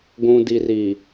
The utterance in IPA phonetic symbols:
ɡʷ ũ˨ d i˨ r i˨

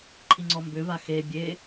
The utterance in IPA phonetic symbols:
ǃʰ i ŋ͡ǀ ɔ m b ʏ v a x e bʲ e

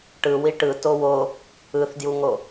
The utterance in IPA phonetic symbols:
ʈ ɯ w i ʈ ɯ t o w o | ɯ θ d j u ŋ o

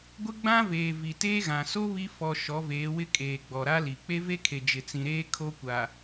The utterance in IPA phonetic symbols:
ɡʷ ɪ˦ ɡ͡b ã˦ v eː˨ v i˨ t eː˦ ɣ ã˨ s o˦ β i˦ f ɔ˨ ʃ ɔ˨˦ v eː˨˦ w ɪ˦ kʼ eː˨ ɡ͡b ɔ˨ ɾ a˦ l i˨ k͡p e˦ v e˦ kʰ e˨ d͡ʒ ɪ˨ t͡s ĩ˨ ɾ eː˦ kʰ o˦ kʷ a˨

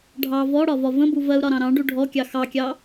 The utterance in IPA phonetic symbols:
ɖʱ ɑ v ɔ ɽ ɒ v ɒ v ə̃ b u v ɜ u̯ ɾ ɒ ɾ ɑ̃ ɾ ɑ̃ ɖ u ɖʱ ɔ kʲ ɑ x ɑ kʲ ɑ

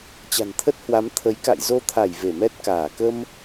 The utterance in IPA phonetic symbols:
t͡ɕ a̤˨˩ n t̪ʰ ə˦˥ t̚ h w a˨˦ m t̪ʰ ə˨˦ j k a̰˧˨ j z o˧ t̪ʰ a˧˩ j v e˧˩ m ɛ˦˥ t̚ k aː˧˩ k ə˧ m

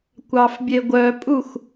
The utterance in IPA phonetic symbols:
kʷ ɑ f bʲ e ɡʷ œ pʼ u x

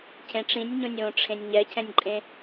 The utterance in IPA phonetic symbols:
cʰ ẽ ʈ͡ʂ ĩ nʲ ɲ õ nʲ w õ ʈ͡ʂʰ ẽ nʲ ɲ ɛ cʰ ɛ̃ nʲ ǃʼ ẽ

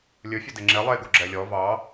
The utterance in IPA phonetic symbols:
lʲ ɵ fʲ ɵ d e ŋ͡ǁ e lˠ e ɡ o ɡ͡ǁ ɛ lʲ ɔ v ɑ

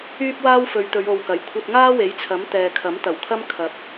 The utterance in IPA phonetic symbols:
yː˥ p̚ w aː˥ w f ɵ˨˧ ɥ t̪ ɵ˨˧ ɥ o˨ w k ɐ˨˩ j kʷʰ ɐ˧ t̚ ŋ aː˥ w e˨˥ j t͡sʰ ɐ˨˥ m t̪ ɛː˨ kʰ ɐ˨˥ m t̪ ɐ˨˩ w kʰ ɐ˥ m kʰ ɐ˨ p̚

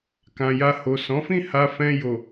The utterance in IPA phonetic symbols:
k ã˨ j a˧ h o˨ s ɔ̃˨˦ f ĩ˦˨ h a˧ f ɛ̃˧ j o˨

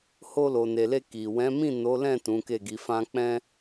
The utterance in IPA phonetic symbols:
h o˧ l o˨ n e˨ l e˧ k i˨ w ɛ̃˨˦ m ĩ˦˨ n o˨˦ l ɛ̃˦˨ t ũ˨˦ k e˦˨ ɡ i˨˦ f ã˦ k͡p ɛ̃˦

